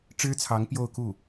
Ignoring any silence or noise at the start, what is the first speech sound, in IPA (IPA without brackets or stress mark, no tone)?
ʈ͡ʂ